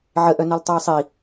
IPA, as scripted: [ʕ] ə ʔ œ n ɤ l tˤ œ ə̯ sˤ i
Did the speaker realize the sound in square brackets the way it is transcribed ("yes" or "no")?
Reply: yes